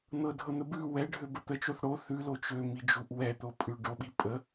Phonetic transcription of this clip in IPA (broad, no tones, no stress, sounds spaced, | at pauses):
n̪ ɤ dʱ ɤ n̪ ə b ʉ w ɛ ɖʱ ø b ə t̪ ə t͡ʃ o θ ɽ o θ ʉ l o t͡ʃ ø m i d͡ʒ u ʔ w ɛ t̪ o pʼ ʉ ɖ o ɓ i pʼ ə